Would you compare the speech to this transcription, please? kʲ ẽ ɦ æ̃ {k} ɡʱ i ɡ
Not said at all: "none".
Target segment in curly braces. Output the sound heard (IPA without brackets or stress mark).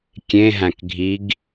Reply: k